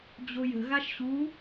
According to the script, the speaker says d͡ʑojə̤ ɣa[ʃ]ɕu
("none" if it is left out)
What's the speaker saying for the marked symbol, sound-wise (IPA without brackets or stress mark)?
ʃ